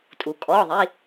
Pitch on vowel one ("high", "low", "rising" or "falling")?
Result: low